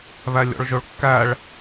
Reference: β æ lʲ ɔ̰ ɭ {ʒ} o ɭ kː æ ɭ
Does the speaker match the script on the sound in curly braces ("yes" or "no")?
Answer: yes